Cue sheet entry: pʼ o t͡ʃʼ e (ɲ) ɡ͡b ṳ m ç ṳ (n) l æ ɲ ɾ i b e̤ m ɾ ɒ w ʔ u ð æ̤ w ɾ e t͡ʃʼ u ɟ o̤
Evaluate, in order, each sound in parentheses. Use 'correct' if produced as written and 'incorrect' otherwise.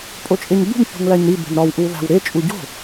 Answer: correct, incorrect: ŋ

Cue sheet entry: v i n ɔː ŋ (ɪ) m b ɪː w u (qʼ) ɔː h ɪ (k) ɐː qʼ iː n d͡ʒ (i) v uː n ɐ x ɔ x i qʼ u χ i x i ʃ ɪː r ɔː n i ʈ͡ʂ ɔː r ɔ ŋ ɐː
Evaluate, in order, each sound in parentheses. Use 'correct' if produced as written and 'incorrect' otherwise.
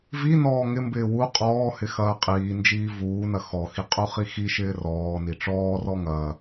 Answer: correct, correct, incorrect: x, incorrect: iː

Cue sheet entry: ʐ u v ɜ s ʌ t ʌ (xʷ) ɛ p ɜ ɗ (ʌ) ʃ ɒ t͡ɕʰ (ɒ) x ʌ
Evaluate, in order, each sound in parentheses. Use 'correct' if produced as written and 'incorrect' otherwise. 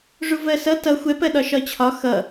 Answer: correct, incorrect: ɒ, correct

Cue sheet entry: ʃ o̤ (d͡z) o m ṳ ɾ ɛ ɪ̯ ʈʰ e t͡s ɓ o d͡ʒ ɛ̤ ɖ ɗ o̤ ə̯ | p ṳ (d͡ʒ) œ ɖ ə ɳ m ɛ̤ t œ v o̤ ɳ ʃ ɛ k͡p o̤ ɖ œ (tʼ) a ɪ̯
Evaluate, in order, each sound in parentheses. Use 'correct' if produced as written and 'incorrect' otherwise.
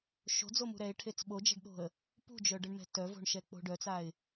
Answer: correct, correct, incorrect: t͡s

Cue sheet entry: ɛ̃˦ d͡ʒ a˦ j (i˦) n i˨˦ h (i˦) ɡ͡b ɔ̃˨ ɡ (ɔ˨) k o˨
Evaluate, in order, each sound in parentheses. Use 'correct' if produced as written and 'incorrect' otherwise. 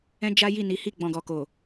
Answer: incorrect: i˦˨, incorrect: i˦˨, correct

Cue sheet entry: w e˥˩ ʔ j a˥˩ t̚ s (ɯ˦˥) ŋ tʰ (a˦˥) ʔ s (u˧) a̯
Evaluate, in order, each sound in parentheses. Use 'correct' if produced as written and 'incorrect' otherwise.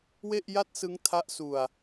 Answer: correct, correct, correct

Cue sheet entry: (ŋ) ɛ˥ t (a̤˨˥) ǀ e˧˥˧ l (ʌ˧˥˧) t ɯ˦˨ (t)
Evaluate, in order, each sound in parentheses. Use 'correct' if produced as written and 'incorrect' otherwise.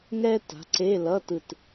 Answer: correct, correct, correct, correct

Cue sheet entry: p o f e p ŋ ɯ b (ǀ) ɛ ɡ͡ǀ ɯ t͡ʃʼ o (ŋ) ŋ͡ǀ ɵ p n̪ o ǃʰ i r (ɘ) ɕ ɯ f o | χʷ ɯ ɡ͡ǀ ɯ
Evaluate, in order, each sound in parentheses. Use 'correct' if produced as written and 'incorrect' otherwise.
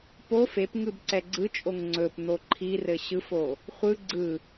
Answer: correct, correct, correct

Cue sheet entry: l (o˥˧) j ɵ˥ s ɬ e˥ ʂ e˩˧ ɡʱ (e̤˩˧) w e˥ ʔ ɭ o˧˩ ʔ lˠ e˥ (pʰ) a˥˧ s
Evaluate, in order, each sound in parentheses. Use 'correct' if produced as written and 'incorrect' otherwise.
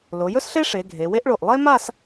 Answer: incorrect: o˩˧, incorrect: e˩˧, incorrect: m

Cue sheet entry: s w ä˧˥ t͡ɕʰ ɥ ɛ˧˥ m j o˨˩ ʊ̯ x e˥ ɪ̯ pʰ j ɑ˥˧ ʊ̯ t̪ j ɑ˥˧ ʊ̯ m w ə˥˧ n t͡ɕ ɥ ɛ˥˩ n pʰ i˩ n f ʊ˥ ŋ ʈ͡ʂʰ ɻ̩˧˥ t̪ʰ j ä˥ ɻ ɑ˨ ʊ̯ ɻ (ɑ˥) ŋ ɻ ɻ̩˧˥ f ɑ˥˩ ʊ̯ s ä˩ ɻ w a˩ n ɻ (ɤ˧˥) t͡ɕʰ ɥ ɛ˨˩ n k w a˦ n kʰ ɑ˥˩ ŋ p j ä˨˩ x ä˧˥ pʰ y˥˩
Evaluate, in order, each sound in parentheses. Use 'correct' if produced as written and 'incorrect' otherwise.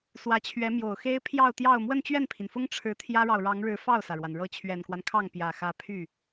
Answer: incorrect: ɑ˧˥, correct

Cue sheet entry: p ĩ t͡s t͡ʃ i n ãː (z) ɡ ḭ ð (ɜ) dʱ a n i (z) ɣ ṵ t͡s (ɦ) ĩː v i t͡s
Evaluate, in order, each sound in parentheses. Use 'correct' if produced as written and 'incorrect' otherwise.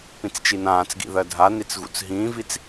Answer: incorrect: t͡s, correct, incorrect: t͡s, correct

